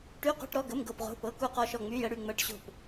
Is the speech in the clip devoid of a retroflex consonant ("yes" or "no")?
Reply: no